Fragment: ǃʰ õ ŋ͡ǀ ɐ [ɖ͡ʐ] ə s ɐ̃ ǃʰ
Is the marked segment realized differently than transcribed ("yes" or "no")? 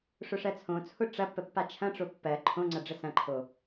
no